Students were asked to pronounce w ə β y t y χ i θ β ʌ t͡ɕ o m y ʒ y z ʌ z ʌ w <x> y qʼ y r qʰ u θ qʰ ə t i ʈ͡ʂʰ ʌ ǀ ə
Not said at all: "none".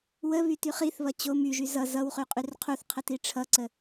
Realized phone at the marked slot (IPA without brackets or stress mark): χ